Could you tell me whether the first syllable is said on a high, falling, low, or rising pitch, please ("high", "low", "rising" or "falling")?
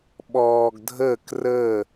low